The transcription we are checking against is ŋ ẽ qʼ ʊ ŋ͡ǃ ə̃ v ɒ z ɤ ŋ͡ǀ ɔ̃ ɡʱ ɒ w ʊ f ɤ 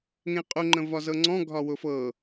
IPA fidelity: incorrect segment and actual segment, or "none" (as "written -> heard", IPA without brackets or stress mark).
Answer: none